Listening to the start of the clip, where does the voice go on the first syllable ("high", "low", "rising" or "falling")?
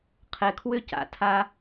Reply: low